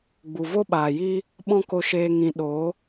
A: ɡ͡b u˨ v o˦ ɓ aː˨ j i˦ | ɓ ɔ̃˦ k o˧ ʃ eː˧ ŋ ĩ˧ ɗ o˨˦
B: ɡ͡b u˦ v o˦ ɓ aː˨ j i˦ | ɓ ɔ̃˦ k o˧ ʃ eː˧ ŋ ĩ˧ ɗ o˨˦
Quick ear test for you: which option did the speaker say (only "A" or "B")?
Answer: A